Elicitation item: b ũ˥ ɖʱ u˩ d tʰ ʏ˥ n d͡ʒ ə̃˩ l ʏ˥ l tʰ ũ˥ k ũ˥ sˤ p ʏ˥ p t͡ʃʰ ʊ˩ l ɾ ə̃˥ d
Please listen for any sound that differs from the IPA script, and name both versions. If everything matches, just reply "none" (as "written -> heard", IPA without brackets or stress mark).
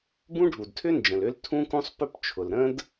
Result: none